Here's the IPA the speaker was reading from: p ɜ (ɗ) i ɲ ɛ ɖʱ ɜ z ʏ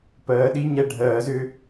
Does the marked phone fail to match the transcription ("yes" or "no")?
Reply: no